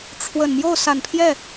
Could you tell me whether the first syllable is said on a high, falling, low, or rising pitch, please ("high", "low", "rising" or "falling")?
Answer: low